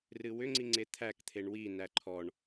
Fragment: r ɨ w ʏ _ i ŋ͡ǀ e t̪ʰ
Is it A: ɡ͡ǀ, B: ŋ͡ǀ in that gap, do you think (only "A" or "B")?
B